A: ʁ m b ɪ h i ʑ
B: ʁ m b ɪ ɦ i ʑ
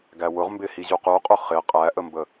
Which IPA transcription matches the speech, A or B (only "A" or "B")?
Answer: A